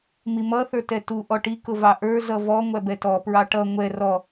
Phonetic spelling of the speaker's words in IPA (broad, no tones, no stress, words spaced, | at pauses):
mimʌ θə˞tɛtu ʔɔʈi kʊvɑʔə˞ zʌvɔ ŋʷæbɛtɔ pɹɑʈʌ ŋʷɛ rɔ